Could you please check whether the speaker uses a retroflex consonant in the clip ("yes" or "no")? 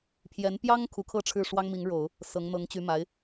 yes